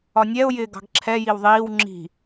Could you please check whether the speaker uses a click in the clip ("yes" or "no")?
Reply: yes